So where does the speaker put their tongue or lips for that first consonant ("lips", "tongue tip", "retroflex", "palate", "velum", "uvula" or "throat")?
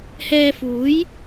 throat